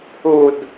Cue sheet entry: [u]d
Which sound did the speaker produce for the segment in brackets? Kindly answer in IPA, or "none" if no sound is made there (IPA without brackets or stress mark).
u